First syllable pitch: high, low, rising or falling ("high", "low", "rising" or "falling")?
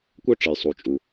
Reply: high